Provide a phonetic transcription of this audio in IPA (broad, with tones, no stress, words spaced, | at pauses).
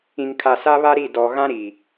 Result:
ĩ˨ŋkʰa˨ sa˦βa˦ɾi˦˨ dɔ˨ ɣã˦ ɾi˨